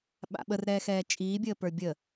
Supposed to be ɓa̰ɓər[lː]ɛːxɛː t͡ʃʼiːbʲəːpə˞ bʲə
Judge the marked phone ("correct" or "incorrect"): incorrect